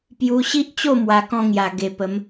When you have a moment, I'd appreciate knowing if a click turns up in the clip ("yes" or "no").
no